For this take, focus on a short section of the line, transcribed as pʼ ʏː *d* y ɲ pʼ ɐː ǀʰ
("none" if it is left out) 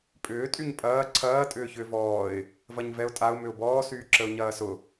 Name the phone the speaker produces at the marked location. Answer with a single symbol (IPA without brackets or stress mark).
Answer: tʼ